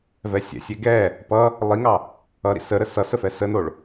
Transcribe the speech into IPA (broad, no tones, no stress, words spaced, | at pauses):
vɛsʲɛ̰sʲɛ ɡɛ | pʌ | lˠiŋɑ | ʌɾḭ səɾə sʌsə fɛsənoɭ